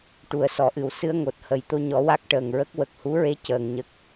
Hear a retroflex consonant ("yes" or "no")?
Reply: yes